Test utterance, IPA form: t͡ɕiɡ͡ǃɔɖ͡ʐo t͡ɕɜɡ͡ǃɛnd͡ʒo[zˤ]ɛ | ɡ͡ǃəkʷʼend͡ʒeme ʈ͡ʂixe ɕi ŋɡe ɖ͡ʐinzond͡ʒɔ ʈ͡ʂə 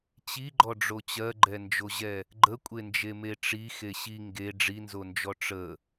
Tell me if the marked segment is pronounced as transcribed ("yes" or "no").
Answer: no